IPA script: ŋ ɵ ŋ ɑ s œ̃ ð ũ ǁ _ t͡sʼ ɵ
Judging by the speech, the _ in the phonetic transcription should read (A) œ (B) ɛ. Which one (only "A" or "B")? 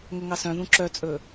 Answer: A